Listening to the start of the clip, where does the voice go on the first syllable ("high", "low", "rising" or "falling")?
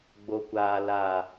low